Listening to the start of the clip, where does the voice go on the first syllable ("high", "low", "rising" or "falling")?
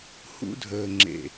high